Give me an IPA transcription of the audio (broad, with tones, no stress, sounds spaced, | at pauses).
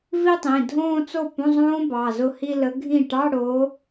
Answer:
v i˥˧ tˤ ĩ˩˧˩ dʱ õː˥˧ t͡s o˥˩ p õ˧˥˧ zˤ õː˦˥ b ɑ˩˧˩ z ʊ˥˩ h i˥˧ l ə˨˦ ɡʱ ĩ˥˩ ʈ ɑ˧˥˧ ɽ o˨˦